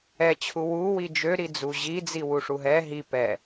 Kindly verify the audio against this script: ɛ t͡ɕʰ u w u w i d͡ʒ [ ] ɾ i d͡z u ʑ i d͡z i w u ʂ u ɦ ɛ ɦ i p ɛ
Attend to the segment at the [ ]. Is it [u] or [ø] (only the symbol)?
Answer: ø